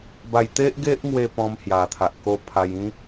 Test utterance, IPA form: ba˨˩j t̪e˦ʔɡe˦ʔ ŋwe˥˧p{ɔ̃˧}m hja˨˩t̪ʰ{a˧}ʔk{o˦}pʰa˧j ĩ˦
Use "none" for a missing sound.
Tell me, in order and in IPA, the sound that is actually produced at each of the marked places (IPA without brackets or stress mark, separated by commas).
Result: ɔ̃˧, a˨, o˦